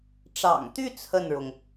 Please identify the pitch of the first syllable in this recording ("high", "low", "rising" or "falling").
low